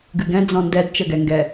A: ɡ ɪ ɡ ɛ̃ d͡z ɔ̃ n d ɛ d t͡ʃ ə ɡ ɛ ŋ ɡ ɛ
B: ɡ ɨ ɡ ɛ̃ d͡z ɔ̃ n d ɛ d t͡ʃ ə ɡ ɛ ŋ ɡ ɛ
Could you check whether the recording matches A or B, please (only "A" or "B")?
B